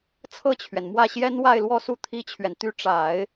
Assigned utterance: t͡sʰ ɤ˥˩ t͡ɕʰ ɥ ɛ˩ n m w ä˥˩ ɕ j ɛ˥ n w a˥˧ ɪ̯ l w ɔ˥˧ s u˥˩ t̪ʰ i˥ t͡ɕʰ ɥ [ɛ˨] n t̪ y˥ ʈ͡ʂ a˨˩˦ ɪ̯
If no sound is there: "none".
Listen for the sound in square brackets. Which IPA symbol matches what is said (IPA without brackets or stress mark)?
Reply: ɛ˨